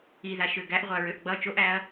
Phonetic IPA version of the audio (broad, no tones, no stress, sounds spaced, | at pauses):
i ð a ʃ ø ɡ æ ʔ ʁʷ a ɹ ø ʔ ɡ͡b ʌ t͡ʃ o ʔ æ ɐ̯